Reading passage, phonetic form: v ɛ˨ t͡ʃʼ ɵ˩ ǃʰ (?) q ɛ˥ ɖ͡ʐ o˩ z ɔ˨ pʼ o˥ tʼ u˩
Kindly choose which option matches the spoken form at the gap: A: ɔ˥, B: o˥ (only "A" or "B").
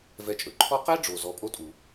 A